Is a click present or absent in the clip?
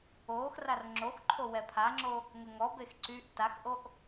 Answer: present